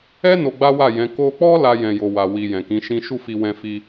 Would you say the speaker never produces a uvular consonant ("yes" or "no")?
yes